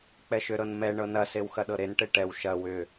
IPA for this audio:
k͡p ɛ ʃ ʏ ɾ ɤ n m ɛ ɳ ɤ n ɐ s e w x ɐ ɗ ɤ ɾ e n ʈ e ʈ ɛ w ʃ ɐ w ʏ

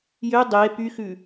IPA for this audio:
j ø dˤ e p y x ʉ

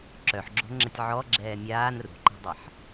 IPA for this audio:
ǁ œ ħ ɡ͡ǁ o̤ ŋ͡ǁ ə tʲ ʕ ɔ ɡ͡ǁ ɛː mʲ aː n r ṳ ǃ ɛ̤ dˤ a ħ

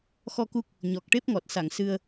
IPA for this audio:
x ɔ˧ k u˦˥ k̚ | ɲ ɔ˨˩ k̚ ʈ e˦˥ p̚ ŋ ɔ˨˩ t̚ s a˨˩˨ ŋ s ɨ˧ ə̯

